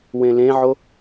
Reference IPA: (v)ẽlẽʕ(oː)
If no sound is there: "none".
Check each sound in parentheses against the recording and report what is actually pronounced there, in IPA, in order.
w, o

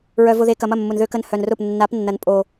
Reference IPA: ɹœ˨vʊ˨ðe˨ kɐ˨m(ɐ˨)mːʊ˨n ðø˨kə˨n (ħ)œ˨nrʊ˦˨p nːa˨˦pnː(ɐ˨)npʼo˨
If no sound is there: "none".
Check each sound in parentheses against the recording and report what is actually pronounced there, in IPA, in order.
ɐ˦˨, h, ɐ˨

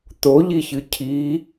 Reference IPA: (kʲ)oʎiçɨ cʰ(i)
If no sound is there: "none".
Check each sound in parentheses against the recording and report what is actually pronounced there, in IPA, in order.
t̪, i

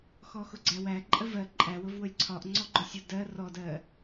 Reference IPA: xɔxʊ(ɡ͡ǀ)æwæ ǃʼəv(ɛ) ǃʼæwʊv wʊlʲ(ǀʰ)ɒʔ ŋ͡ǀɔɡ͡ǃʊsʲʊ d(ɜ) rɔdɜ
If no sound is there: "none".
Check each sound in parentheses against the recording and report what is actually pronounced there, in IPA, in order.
ɡ͡ǀ, ɜ, ǀʰ, ɜ

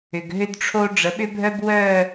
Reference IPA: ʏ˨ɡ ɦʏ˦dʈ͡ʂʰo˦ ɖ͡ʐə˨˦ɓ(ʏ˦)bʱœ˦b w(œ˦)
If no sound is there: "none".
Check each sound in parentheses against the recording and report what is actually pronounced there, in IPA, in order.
ʏ˦, œ˦˨

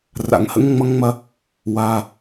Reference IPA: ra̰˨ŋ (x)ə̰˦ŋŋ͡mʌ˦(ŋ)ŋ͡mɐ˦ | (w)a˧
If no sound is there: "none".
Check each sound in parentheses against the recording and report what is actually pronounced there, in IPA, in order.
h, ŋ, w

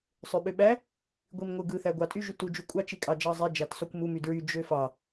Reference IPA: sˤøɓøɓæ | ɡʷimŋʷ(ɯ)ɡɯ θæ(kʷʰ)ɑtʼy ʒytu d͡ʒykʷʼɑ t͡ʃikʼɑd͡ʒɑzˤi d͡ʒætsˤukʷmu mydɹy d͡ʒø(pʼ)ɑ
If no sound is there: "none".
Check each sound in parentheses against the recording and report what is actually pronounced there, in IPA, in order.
ɯ, ɡʷ, f

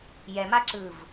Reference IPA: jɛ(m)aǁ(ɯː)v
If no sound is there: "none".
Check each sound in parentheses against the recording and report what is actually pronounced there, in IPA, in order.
m, ɯː

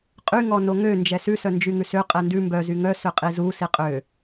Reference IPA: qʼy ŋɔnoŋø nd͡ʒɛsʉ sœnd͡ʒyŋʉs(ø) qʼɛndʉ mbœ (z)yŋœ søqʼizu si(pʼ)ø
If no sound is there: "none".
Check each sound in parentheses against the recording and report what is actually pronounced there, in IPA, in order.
ø, z, qʼ

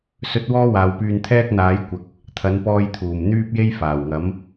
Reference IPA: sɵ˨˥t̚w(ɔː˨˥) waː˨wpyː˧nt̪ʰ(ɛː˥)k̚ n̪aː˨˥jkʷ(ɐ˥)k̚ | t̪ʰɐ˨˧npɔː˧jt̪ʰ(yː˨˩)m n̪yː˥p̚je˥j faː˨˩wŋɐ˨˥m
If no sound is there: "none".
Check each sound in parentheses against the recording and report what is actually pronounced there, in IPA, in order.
ɔː˧, ɛː˥, ɐ˨, uː˨˩

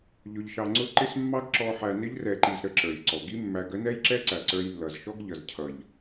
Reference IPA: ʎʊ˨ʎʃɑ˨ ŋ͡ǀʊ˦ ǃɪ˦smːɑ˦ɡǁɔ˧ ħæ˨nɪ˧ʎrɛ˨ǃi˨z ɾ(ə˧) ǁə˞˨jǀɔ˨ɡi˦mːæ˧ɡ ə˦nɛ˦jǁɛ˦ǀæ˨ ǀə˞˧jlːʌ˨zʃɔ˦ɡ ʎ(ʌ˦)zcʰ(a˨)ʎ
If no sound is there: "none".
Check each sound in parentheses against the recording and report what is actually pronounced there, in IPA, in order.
ə˧, ʌ˨, ʌ˨

